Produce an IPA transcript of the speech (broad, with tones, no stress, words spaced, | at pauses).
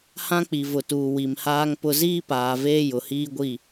hã˦k͡pi˨vʊ˨tuː˨ wi˨mhaː˦ŋpʊ˦ ziː˦paː˨veː˦jʊ˨ hiː˦ɡʷi˦˨